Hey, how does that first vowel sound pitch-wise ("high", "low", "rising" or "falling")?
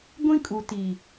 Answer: high